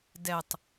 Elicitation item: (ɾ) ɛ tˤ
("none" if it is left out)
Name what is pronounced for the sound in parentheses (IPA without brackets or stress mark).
d